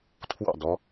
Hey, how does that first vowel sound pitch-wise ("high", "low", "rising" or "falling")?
falling